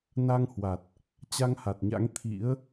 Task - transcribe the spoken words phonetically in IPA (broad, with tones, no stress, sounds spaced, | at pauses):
n a˧ ŋ h w a˨˩ t̚ | t͡ɕ a˧ ŋ h a˨˩ t̚ ɲ a̰˧˥ ŋ t̪ʰ ḭ˧˥ ə̯